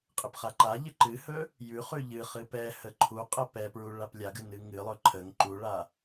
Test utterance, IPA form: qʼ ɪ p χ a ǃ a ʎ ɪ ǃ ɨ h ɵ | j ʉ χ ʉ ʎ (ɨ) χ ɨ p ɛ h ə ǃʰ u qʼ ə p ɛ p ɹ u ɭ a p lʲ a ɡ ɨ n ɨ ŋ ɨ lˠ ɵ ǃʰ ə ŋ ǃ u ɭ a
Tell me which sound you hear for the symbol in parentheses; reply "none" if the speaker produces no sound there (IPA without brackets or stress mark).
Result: ɨ